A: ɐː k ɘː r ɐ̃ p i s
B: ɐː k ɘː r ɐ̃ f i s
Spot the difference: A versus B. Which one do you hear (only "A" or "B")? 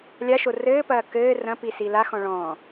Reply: A